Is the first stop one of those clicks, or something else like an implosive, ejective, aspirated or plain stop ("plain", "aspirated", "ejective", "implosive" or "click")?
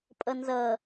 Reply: ejective